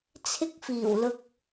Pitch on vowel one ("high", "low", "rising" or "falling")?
high